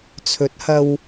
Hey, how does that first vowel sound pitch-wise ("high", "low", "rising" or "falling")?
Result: rising